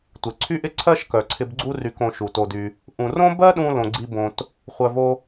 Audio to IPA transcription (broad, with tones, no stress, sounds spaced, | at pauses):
tʷ ɪ˨ ǀʰ y˦ ʔ ɪ˧ ǀʰ ɜ˦ ʃ k œ˨ ǀʰ ɪ˧ b ɡ͡ǀ u˦ r y˧ k õ˧ ʃ u˨ t o˧ d y˧ | ʔ ũ˨ r õ˦ b ɜ˦ ɗ ũ˧ l õ˨ ɡ͡ǀ i˧ b õ˧ t | χʷ œ˨ v o˧